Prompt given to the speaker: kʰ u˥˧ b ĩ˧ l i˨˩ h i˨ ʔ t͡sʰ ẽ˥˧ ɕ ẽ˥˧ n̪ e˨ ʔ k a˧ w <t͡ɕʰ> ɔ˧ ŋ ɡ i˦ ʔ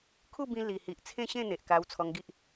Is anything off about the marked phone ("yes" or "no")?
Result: yes